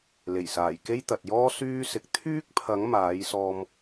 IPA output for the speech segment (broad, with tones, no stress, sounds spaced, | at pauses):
l e˨˩ j s aː˨˩ j k e˥ j t̪ ɐ˨ t̚ j ɔː˥ s yː˥ s ɪ˨˥ k̚ t̪ʰ yː˥ k̚ pʰ ɐ˨˥ ŋ m aː˨˥ j s ɔː˧ m